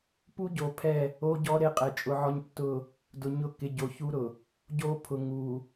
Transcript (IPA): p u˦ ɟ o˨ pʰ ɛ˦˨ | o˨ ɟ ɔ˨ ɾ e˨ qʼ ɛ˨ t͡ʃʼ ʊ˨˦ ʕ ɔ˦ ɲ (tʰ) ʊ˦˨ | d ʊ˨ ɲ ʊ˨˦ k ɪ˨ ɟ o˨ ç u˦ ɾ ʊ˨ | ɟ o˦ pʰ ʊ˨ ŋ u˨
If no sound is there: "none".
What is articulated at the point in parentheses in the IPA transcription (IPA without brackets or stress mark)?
tː